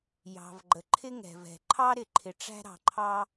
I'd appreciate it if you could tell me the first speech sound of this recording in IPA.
j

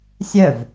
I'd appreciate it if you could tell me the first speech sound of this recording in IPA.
sʲ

